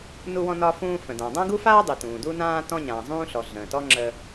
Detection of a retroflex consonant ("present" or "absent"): absent